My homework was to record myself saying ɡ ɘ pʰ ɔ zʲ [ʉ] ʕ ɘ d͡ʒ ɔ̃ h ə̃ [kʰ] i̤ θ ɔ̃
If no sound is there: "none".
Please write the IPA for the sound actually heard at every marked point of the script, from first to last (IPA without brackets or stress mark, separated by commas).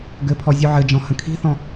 ʉ, kʰ